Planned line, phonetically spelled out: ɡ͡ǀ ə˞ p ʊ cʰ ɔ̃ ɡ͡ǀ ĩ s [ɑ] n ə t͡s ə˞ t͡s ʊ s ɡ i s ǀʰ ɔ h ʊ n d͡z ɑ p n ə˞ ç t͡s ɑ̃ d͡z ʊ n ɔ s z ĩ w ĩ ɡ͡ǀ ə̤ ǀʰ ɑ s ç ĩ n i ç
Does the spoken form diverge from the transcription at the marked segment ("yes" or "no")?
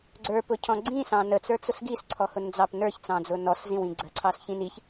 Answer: yes